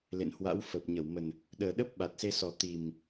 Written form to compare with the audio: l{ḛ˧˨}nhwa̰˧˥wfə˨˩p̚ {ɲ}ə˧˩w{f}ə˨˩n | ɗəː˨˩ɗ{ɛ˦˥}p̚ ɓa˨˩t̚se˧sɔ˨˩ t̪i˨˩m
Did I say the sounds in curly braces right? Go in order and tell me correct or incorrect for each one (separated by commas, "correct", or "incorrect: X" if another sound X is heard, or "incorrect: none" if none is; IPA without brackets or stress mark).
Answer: correct, correct, incorrect: m, incorrect: ə˦˥